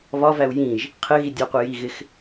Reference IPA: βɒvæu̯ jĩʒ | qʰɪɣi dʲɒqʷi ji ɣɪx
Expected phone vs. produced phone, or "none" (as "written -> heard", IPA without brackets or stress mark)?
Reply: none